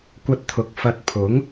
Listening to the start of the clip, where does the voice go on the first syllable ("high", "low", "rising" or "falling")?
high